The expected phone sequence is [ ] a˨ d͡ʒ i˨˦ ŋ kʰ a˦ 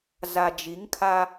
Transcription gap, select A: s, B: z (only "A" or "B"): B